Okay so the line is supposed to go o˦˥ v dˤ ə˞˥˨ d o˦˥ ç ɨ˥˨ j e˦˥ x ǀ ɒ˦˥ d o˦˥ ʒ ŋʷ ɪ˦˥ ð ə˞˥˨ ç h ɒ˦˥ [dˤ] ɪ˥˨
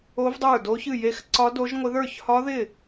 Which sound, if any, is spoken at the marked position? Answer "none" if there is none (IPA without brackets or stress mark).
ð